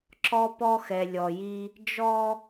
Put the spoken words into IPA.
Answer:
ǁɔ˦pɔ˦xɛ˨ lʲɔ˨ji˦ | d͡ʒɔ˦

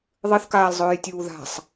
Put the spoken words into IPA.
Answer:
ðˤɨθkaːlzˤɵːjtʲuː ða̤sˤ

